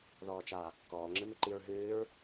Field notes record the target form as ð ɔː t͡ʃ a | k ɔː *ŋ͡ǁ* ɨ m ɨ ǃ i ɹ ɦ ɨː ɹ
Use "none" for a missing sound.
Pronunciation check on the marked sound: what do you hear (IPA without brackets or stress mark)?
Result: ŋ͡ǁ